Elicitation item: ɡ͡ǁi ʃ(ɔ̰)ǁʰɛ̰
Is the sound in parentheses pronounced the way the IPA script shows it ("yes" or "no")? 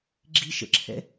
no